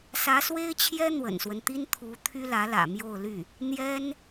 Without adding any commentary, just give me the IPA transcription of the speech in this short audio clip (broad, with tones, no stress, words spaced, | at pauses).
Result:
sä˧˥swe˥ɪ̯t͡ɕʰjɛ˥ n̪wə̰˨˩nswə˦nt̪i˥n t̪ʰu˧˥ t̪ʰy˥lä˧˥ lä̰˨˩ mjo˥˧ʊ̯ly˥˩ | n̪jɛ˥n